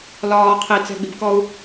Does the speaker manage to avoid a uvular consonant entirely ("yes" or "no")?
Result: no